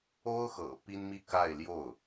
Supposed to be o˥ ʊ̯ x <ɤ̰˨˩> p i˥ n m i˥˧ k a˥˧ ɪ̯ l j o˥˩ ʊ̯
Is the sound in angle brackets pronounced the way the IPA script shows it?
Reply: yes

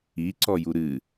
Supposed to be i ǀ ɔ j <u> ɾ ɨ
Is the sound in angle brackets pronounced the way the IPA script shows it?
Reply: yes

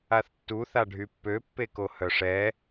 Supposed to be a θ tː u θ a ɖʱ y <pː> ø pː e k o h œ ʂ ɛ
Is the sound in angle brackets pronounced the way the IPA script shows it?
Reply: yes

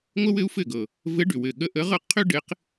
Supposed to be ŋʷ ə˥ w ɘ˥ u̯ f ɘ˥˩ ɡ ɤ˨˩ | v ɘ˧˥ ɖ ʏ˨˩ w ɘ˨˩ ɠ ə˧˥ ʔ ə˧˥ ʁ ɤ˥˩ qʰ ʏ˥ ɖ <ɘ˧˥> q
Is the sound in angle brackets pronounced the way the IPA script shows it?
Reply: yes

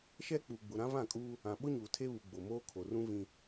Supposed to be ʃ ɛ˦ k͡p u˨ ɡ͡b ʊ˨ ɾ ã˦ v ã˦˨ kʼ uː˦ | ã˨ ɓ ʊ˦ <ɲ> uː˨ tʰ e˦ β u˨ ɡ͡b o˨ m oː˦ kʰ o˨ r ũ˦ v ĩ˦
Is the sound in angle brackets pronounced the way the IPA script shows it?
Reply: yes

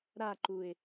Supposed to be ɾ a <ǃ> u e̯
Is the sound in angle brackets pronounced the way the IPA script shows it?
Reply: yes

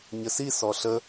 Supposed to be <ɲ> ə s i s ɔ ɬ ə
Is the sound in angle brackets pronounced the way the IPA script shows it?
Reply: yes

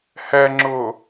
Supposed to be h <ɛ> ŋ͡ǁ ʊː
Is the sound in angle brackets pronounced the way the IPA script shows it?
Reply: yes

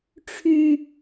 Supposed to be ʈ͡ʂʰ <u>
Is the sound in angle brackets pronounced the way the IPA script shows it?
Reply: no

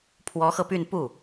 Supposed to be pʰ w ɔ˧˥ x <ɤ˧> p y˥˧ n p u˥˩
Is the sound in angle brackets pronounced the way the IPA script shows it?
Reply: yes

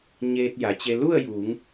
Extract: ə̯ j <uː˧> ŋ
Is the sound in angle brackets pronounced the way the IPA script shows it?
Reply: no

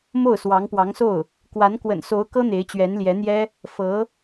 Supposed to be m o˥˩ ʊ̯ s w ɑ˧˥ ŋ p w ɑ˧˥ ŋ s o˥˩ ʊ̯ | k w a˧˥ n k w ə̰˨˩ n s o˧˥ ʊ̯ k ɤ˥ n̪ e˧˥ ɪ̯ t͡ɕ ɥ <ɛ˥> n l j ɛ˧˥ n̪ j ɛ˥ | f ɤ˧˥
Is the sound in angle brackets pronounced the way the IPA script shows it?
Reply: no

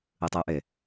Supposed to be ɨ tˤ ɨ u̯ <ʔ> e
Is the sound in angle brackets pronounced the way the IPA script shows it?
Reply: yes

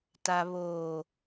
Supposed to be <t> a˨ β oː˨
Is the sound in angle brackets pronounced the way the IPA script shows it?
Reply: yes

